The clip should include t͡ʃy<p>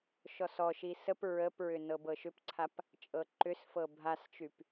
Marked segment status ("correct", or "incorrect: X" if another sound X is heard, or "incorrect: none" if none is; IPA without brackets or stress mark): correct